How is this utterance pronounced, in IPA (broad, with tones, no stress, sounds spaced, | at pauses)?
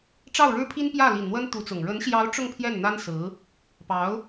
ʈ͡ʂ ɑ˥˩ ʊ̯ ɻ ɻ̩˥ pʰ i˥ n p j ä˥˩ l i˨˩ n n̪ w ə˥ n t̪ u˧˥ t͡s ʊ˨˩ ŋ ɻ ə˧˥ n ɕ j ɑ˧˥ ʊ̯ ʈ͡ʂ ʊ˥˧ ŋ pʰ j ɛ˥˩ n n̪ a˥ n s ɹ̩˧˥ | p ɑ˧˥ ʊ̯